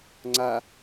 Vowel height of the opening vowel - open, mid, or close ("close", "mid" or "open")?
open